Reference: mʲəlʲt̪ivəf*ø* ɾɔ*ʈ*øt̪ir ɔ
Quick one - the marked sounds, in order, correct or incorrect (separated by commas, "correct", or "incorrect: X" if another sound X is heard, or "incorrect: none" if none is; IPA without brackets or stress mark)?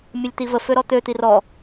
correct, incorrect: t̪